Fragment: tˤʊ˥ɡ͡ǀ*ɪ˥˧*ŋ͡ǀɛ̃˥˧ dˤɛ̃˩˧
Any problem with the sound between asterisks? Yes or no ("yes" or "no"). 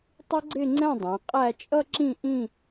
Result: no